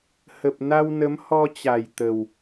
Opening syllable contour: low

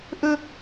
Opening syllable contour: high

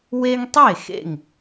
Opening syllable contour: high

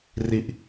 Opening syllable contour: low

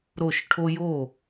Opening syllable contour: falling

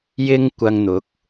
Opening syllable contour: high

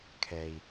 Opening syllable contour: low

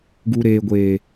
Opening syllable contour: low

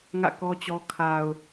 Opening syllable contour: falling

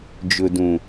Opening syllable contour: low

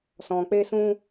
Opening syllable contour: low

